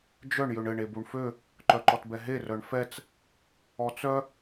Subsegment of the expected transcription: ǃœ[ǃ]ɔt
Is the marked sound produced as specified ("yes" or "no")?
yes